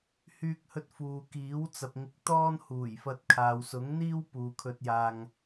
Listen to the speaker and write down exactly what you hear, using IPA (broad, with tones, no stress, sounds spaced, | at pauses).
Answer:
h yː˧ k̚ h ɵ˧ t̚ f uː˨ k iː˨˥ w t͡s ɐ˨ p̚ ŋ ɪ˧ k̚ t̪ ɔː˥ n h uː˨˩ j f ɐ˧ t̚ kʰ aː˨ w s ʊ˨˥ ŋ n̪ iː˥ w p uː˨ kʰ ɵ˧ t̚ j aː˧ ŋ